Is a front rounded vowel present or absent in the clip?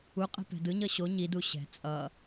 absent